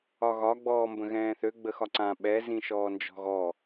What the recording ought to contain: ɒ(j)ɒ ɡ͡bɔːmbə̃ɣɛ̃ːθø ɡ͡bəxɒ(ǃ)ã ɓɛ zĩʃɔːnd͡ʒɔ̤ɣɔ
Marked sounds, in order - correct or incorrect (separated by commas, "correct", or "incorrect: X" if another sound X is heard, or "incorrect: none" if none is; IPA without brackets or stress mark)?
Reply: incorrect: ɣ, incorrect: ǀ